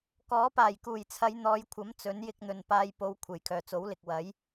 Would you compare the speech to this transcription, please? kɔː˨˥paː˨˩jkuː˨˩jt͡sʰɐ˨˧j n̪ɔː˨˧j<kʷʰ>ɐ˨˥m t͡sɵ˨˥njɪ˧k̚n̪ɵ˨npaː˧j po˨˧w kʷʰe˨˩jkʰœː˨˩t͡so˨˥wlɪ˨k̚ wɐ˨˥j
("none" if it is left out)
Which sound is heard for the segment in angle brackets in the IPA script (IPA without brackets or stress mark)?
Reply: kʷʰ